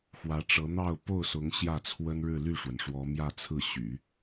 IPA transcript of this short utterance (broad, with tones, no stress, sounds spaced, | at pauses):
x w ä˧˥ ʈ͡ʂ ɤ˧˥ n̪ ɑ˥˧ ʊ̯ p o˥˩ ʊ̯ s ʊ˧˥ ŋ ɕ j ä˥˩ t͡sʰ w ə˥ n ɻ ɻ̩˥˧ l y˥˩ ʂ w ə˩ n ʂ w ɔ˧˥ m j ä˥˧ t͡sʰ ɹ̩˥˩ ɕ y̰˨˩˦